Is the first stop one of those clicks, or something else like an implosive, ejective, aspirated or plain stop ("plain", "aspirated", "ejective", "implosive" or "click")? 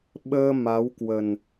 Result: implosive